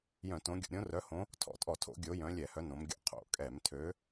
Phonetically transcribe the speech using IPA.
j œ̃˧˩˧ t õ˨˦ ɡʲ o̰˧˩˧ ɾʲ õ˨˦ r œ˨˦ h õ˨˦ | tʰ ɔ̰˧˩˧ tʼ ɔ˧˩˧ tʰ o̰˧˩˧ ɡʲ o˨˦ j œ̃˨˦ lʲ ɛ˧˩˧ h œ˨˦ n õ˨˦ m ɡʲ o̰˧˩˧ qʰ o̰˧˩˧ kʼ ɛ˧˩˧ m tʰ ø˨˦

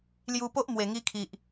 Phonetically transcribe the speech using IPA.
l j u˧ p o˦ ʔ m w e˨˩ ŋ i˧ kʰ i˨ ʔ

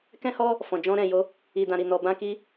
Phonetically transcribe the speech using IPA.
k ɛ̃˦ h ɔ˦ | f ɔ̃˨ d͡ʒ ɔ̃˧ ɾ ɛ̃˨ j o˧ | i˨ d ã˨ ɾ i˨ n ɔ˨ b ã˧ k i˧

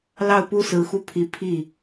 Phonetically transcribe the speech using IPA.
l ɑ˥˩ ʊ̯ p u˥ s ɹ̩˧˥ x u˥˩ pʰ i˧˥ pʰ i˥˩

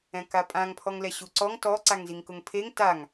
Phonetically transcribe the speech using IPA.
ɛ̃ k a pʼ ã ŋ pʰ ɔ ŋ l ɛ ɕ u ǀ ɔ ŋ t ɔ ǀ a ŋ z i ŋ k ʊ ŋ pʰ e ŋ t a ŋ

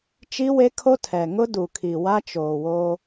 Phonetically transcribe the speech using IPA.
t͡ʃ i˦ w e˦ kʰ o˦ tʰ ɛ˨ ŋ ʊ˦ d u˨ kʰ i˨ w a˦ t͡ʃ oː˨ w oː˦

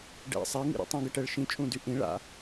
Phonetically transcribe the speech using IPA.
ɖ ɛ̰ sˤ ɛ ŋ ḭ ɾ ḭ tˤ ũ ɡ ə ʈ ɛ ɭ ʃ ĩ t͡ʃʼ ũ d y ʔ ĩ ɭ a̰

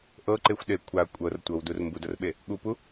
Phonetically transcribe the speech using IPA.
ʔ ɤ ǃ e xʷ ɗ e kʷʰ a kʷʼ ɤ r tʷ ɤ w d u r m b u d ɤ r ɓ e | ɠ u p u

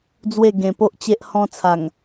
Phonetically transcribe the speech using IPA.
d͡z w e˥˧ ɡ ẽ˧ p o˦ ʔ t͡ɕ e˦ ʔ h ɔ̃˧ t͡sʰ a˨˩ ŋ

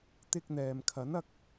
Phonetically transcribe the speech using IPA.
t̪ ɪ˧ k̚ n̪ ɛː˨ m kʰ ɐ˨˥ n ɐ˨˥ k̚

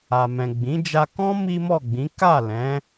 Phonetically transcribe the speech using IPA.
a˨ m ɛ̃˨ ɡ͡b ĩ˨˦ d͡ʒ a˧ k ɔ̃˦ m i˦ m ɔ˦˨ ɡ͡b ĩ˨˦ k a˦˨ l ɛ̃˨˦

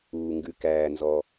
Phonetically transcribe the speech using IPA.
uː˩ ŋ ɡ ʉ˩ k æː˩ n z ɔ˩

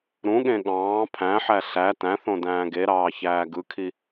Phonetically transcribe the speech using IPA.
ɾ ũ ɠ ẽ ɠ ɑ̃ː pʰ æ̃ ħ æ ɬ æ t æ̃ θ õ d æ̃ː ɡ e ɾ ɑː ç æː ɡ ɯ kʰ i

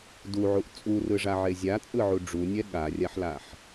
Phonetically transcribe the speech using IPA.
d u ʕ u ʔ t͡sʼ u r ɯ ʐ a ʕ e zʲ a t͡sʼ ɯ ʕ u ɖ͡ʐ u nʲ ɛ ɠ a rʲ a ħ l a ħ

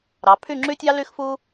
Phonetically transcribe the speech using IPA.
ɾ ɑ˩˧ pʰ y˥˧ ŋ͡ǁ y˥ tʲ ɑ˥ l y˥ x f u˥

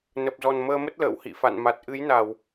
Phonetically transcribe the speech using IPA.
n ə˨˩ p̚ z ɔ˨˩ n m əː˧ m ə˦˥ t̚ l ə̰ː˧˨ w h ḭ˧˨ f a̰˧˨ n m a˨˩ t̚ ʔ ɨ˨˦ j n a˧˩˨ w

